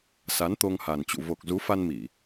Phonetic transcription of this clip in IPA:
s a˨˦ n t̪ o˧ ŋ h a˨˩ n t͡ɕ ṵ˧˨ v o˨˩ k̚ z u˨˦ f a˧ n m i˧˩˨

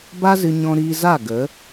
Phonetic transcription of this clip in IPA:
b a˦ z ɨ˧ ɲ ɔ̃˧ ɾ iː˧ z a˦˨ ɡ ə˨˦

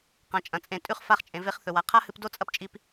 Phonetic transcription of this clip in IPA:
q ã˩ t͡ʃʼ ɐ̃˩ t͡sʼ ẽ˩ tʼ ʉ˧ χ f a˧ χ t͡ʃʼ ẽ˩ v e˧ χ θ ɵ˩ w a˩ qʰ a˥ h ɨ˧ p d o˥ t͡sʼ ɐ˧ p t͡ʃʼ i˧ p

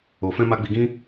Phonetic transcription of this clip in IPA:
o˨ f ɛ̃˧ m a˧ ɡ͡b i˧ ɡ ĩ˦

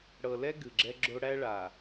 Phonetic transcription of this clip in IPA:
ɽ ɤ˨ l ɛ˦ ɡ ɨ˨ ɡ͡ǁ ɛ˦ ɡ͡ǁ o˦ ɽ æ˦ ɭ a˨

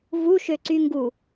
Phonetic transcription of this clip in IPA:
v u ʃ ø ǀ y ŋ ɡ u

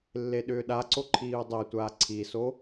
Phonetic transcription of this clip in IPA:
lː e ɗ ʏː ɗ a ǀ o ǃʰ iː u̯ dˤ ɛ tʷ aː ǀʰ i s o

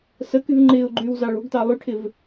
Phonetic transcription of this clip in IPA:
s ə k y v ŋ͡ǃ ɪː ʊ̯ ɡ͡ǃ yː w z ɑ ɭ o̤ ɡ t ɑ lˠ y ʈʰ ɪ v

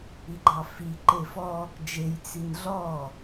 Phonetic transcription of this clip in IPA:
i ɡ͡ǃ ɑ f i ǃ e f ɔ | d͡ʒ e j t͡s i n ɮ ɔ

